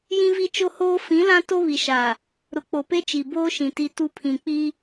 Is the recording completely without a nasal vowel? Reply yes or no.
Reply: no